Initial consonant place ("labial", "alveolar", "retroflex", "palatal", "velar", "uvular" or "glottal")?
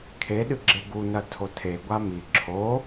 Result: velar